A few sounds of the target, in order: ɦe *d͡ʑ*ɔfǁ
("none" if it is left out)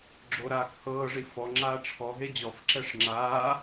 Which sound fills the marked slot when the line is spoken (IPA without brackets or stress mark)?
d͡ʑ